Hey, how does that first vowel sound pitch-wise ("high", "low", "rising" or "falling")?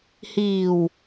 low